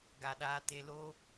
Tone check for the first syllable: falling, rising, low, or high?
low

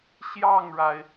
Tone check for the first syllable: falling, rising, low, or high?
falling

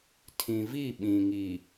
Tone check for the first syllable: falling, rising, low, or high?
low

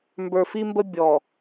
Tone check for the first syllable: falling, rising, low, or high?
low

